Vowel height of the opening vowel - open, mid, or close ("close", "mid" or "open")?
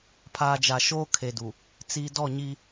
open